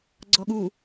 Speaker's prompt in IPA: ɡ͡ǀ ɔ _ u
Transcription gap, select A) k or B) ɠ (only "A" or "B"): B